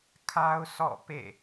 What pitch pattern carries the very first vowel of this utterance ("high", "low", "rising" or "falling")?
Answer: high